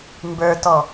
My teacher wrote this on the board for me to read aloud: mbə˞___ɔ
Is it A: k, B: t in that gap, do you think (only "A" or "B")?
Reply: B